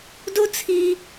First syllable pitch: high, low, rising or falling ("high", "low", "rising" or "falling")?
high